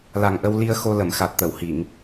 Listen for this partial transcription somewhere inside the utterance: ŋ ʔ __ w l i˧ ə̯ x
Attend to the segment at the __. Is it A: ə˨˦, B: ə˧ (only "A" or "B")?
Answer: B